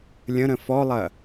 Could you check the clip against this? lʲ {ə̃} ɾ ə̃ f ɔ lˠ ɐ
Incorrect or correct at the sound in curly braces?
correct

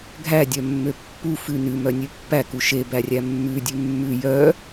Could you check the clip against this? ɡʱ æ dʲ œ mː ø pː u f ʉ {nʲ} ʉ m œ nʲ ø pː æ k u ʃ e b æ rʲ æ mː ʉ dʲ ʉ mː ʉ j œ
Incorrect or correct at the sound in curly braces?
incorrect: n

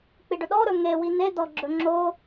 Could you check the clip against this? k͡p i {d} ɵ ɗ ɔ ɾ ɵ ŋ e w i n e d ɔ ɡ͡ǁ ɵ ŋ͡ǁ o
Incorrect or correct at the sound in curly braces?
incorrect: ɖ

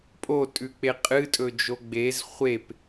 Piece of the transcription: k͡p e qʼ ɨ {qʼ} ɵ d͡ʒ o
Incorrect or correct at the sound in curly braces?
incorrect: tʼ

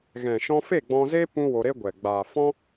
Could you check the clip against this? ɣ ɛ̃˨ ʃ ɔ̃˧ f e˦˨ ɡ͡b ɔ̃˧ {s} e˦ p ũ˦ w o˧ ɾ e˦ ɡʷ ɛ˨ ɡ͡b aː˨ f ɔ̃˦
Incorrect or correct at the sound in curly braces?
incorrect: z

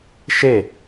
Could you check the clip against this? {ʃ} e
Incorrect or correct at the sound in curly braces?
correct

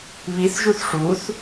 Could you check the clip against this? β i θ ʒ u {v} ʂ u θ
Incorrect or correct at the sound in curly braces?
incorrect: θ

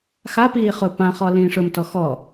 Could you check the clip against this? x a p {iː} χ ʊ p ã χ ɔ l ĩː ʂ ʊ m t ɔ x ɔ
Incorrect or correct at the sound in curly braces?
correct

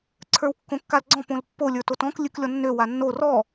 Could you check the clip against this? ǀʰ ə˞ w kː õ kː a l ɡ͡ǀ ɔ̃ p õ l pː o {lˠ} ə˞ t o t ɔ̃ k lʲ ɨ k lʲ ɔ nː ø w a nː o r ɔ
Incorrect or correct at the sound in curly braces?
incorrect: lʲ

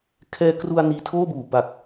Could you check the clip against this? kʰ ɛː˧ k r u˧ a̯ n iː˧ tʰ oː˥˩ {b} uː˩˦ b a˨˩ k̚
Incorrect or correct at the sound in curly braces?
correct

